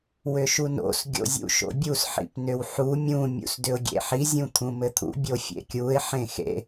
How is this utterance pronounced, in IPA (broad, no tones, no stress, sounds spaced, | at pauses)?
w ʏ ʃ u n o̰ s ɡʲ o̰ zʲ ṵ ʃ o̰ bʲ u s ħ ḭ p n ʏ w ħ u mʲ ũ mʲ ṵ s d ʏ ʊ̯ ɡʲ ḛ ħ i zʲ ũ t̪ʰ ũ m ɘ t̪ʰ ṵ bʲ o fʲ ḛ kʲ u ɪ̯ ħ ẽ x ḛ